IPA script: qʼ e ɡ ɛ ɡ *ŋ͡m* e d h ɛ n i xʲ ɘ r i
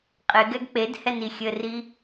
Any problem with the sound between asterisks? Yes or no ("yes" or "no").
yes